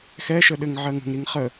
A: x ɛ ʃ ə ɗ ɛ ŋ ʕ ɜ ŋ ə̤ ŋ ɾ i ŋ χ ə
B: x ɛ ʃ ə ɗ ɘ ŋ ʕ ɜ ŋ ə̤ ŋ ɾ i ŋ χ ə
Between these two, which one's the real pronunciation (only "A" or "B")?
B